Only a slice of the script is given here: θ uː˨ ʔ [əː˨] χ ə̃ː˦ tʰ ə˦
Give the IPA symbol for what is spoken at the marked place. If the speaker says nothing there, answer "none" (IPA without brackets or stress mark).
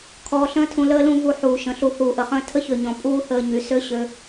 ə˨